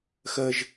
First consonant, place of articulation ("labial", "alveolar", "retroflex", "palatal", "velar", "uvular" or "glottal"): velar